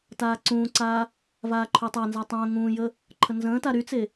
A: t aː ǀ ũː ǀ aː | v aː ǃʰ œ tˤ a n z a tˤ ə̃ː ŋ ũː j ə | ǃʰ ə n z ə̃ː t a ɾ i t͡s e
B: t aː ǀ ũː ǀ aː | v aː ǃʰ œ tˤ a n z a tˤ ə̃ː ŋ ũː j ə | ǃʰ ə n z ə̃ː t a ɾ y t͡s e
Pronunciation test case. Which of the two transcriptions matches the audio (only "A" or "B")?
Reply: B